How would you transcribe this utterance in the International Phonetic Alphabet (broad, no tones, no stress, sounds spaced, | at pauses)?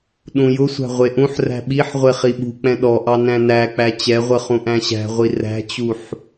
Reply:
ɗ ũ j ʊ sʷ æ̤ ʁʷ e ʔ ũ ħ r æ̤ ɓ i ħ ʁʷ e χ i ɓ ṳ k͡p ɛ̃ ɗ ɔ ʔ ɑ n æ̃ n æ k͡p æ t͡ɕ ɛ ʁʷ ə χ ũ ʔ æ̃ ɕ æ̤ ʁʷ i r æ̤ t͡ɕ u ħ